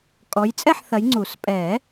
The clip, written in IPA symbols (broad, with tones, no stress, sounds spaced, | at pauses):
kʼ ɔ˨˦ j t͡sʼ ɛ˥˨ ħ θ ɐ˨˦ j ŋ͡ǀ u˨˩˦ s pʼ ɛ˨˩˦